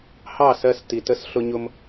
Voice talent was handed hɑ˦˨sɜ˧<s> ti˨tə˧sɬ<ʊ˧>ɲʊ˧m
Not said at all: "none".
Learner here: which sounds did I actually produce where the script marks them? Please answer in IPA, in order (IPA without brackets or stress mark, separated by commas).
s, ʊ˧